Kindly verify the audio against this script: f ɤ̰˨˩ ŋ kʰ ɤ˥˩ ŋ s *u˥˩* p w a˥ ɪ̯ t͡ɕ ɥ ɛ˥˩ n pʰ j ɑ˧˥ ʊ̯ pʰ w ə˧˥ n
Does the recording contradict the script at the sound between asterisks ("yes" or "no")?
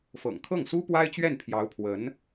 yes